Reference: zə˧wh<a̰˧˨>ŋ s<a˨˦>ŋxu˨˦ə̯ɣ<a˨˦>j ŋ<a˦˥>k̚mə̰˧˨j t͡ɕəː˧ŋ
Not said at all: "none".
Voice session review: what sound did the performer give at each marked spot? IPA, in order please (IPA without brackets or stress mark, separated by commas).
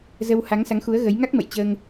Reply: a˨˦, a˨˦, ə˨˦, a˦˥